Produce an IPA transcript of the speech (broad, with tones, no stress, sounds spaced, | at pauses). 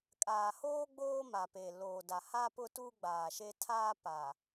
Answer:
kʼ aː˨ h oː˦ ɡ͡b oː˦ m a˨ p e˨ l oː˨ d a˨ h a˦ p ʊ˦ t uː˦ ɡ͡b aː˨ ʃ e˦ tʰ aː˦ p a˨